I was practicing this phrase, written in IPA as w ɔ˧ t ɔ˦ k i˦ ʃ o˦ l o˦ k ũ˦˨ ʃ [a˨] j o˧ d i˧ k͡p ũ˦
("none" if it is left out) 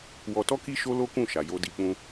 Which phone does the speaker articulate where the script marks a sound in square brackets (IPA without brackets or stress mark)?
a˨